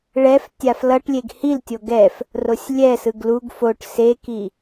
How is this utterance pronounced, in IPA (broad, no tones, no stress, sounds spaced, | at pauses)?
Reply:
ɭ ɛ f tʲ a f l ʌ ʈ lʲ e ɡ h i l tʲ o ɡ ɛ f | r o sʲ lʲ ɛ s ɯ ɡ l u ɡ f o ʈ s e k i